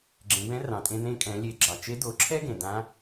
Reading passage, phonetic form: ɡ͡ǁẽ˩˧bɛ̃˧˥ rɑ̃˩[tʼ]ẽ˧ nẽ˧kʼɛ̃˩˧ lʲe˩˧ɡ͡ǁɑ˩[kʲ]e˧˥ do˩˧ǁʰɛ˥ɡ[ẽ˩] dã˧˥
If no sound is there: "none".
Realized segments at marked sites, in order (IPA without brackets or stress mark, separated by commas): tʼ, t͡ʃ, ẽ˩